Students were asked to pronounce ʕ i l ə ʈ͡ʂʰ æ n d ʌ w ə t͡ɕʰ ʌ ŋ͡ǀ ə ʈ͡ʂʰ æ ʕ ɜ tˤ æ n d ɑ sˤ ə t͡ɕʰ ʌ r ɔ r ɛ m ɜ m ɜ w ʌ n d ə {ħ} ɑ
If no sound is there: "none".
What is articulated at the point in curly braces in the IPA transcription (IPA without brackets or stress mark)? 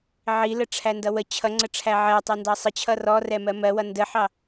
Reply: ħ